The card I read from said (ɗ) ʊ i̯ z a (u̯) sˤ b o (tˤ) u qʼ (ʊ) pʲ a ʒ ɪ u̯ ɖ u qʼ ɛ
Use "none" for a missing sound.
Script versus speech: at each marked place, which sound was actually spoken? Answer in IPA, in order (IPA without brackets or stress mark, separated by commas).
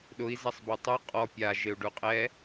ɗ, none, tˤ, ɔ